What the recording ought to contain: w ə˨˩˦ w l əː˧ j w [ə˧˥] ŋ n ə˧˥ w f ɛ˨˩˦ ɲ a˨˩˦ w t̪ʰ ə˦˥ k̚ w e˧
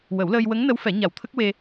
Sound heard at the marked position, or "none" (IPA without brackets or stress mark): ə˧˥